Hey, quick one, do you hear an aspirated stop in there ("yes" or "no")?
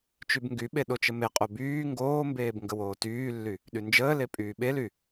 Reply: no